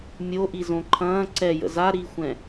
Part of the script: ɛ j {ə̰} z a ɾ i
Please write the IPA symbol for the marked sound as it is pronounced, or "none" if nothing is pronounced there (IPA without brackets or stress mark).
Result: ə̰